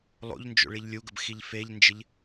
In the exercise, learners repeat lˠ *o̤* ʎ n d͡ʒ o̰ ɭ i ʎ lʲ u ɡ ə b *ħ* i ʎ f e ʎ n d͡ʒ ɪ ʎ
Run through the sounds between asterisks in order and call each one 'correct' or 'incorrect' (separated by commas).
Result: incorrect, incorrect